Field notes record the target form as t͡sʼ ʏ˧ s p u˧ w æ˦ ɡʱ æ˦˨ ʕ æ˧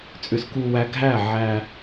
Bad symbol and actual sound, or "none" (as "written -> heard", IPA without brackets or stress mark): p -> k